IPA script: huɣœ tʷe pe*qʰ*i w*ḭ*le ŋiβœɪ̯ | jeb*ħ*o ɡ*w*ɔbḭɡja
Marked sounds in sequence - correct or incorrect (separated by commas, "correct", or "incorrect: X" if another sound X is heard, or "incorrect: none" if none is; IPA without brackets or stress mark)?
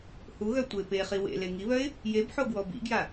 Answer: incorrect: χ, incorrect: ḛ, correct, correct